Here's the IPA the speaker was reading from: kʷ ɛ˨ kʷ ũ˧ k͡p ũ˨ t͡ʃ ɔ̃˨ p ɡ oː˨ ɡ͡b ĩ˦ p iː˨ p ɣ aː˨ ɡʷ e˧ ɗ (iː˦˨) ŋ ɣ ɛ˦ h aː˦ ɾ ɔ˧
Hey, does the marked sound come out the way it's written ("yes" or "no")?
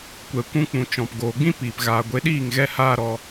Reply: yes